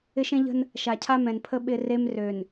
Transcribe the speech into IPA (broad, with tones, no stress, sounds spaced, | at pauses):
ɪ˦ ʃ ẽ˦ ʎ ə̤˦ n | ʃ a˨ cʰ a˦ m ɛ̃˨ n pʰ ə˦ ɓ ɪ˦ r e˦ m r ø˨ n